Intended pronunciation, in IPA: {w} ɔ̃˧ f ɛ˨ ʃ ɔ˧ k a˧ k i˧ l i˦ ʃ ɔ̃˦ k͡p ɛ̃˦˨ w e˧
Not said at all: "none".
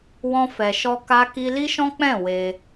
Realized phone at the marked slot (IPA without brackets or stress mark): w